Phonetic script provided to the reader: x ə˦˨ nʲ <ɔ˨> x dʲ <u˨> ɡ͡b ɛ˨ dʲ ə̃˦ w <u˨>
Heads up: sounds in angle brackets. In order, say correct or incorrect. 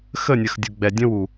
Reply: incorrect: ə˨, correct, correct

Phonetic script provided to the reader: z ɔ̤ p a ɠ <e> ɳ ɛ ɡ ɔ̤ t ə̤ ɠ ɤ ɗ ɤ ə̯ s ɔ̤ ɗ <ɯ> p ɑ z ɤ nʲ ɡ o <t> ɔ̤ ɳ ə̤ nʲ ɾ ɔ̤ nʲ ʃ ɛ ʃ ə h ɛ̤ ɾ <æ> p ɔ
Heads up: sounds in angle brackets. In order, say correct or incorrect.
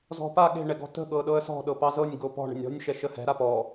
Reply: incorrect: e̤, incorrect: ɤ, incorrect: p, incorrect: a

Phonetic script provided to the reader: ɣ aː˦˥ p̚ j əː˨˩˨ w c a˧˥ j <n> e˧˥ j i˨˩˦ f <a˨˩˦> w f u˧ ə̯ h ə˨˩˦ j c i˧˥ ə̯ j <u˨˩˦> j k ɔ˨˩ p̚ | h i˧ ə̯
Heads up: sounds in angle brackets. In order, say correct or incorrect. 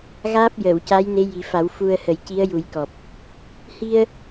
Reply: correct, correct, correct

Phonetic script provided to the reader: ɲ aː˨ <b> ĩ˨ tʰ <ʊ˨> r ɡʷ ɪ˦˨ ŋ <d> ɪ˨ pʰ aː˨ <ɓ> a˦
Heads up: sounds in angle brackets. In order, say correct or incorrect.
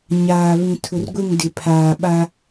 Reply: incorrect: β, correct, correct, correct

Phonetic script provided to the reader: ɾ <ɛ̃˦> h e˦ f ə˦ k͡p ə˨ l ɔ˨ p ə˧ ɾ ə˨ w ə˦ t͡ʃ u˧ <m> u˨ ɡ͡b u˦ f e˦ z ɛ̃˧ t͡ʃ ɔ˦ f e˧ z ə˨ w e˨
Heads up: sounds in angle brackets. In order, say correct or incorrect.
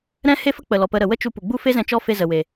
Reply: correct, incorrect: p

